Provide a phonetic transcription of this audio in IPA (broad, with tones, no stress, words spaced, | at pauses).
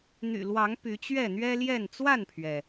n̪y̰˨˩lwɑ˨˦ŋ py˨˦t͡ɕɥɛ˥˨ n̪ɥɛ˦ljɛ˥˨n t͡swa˥˨npʰɥɛ˩